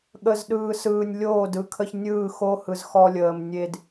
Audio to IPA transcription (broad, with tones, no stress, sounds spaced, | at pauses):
ɠ ə˨ z ɗ ɯː˨ s ɯː˨ nʲ lʲ oː˦˨ d ɯ˨ kʰ ə˦ ç nʲ ɯː˦˨ x o˦ h ɯ˨ z x ɔ˦ lʲ əː˨ m nʲ e˦ d